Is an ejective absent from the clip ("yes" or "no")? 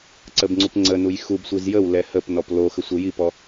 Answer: yes